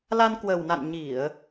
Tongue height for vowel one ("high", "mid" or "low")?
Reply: low